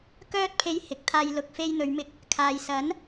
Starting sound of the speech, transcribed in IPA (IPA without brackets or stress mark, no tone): k